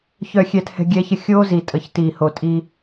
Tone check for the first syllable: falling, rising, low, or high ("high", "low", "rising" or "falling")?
low